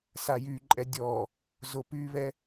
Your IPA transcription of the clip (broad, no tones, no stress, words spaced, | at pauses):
sajyǃʼɛ dʲɔ | zopyβɛ